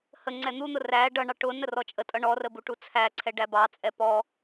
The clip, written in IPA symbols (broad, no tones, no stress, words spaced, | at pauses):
hə ŋ͡ǀɛn̪un̪ʊ ræ ɖʌɳɑ ʈʊ nərɔt͡ʃʼətʼʌ ɳɔrə buʈut͡sʰæǀʰɛ ɖæbɑt͡sʼɛ pɔ